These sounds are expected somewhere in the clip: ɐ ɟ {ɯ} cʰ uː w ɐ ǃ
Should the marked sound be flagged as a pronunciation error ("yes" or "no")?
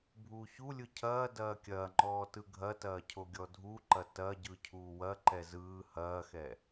no